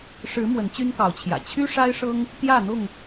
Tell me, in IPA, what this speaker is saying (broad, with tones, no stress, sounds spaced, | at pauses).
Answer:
ʂ ɻ̩˨˦ m w ə˨˦ n t͡ɕ y˦ n k ɑ˨˦ ʊ̯ t͡ɕʰ j ä̰˨˩ t͡ɕʰ y˦ ʂ a˦ ɪ̯ ʂ ɤ˦ ŋ | t̪ j ä˥˨ n̪ ʊ˥˨ ŋ